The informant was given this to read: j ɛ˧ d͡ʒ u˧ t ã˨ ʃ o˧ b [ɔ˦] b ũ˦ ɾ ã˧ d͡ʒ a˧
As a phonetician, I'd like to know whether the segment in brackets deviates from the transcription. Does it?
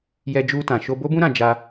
yes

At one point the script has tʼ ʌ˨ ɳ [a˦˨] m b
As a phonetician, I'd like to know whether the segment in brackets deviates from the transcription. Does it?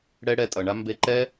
yes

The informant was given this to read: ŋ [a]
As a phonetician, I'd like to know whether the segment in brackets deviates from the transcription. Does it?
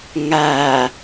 no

